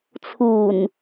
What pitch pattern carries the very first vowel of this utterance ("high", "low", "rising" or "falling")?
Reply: low